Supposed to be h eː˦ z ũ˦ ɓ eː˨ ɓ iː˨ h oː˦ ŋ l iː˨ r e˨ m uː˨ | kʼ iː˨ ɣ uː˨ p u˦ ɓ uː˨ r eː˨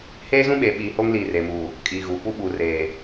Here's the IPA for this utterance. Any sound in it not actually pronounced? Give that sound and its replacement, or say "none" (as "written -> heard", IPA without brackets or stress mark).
none